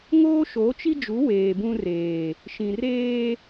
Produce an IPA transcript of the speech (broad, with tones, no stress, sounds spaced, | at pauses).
ŋ oː˦ ʃ o˨˦ t͡ʃ i˦ d͡ʒ u˨˦ w eː˨ b ũ˦ r eː˨ | ʃ ĩ˨ r eː˦